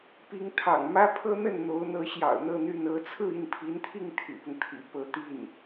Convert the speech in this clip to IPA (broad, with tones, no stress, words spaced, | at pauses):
pi˧˥ŋt̪ʰɑ̰˨˩ŋ mä˥pʰɤ˥n̪ə˥˩n n̪o˧˥ʊ̯n̪ɤ˧˥ɕjɑ̰˨˩ʊ̯n̪ɤ˥˧ n̪y˥˩nɤ˥ t͡sʰɹ̩˥˧i˥˩npʰi˧˥nt̪ʰi˥˩ŋ t̪ʰy̰˨˩pʊ˦ŋt̪ʰḭ˨˩ pɤ˧˥t̪i˥˩n